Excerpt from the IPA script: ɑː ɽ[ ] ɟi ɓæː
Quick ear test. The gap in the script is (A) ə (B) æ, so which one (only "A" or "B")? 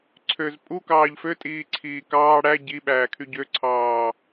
B